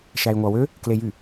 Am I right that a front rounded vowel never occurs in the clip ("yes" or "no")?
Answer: no